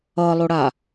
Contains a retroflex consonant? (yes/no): yes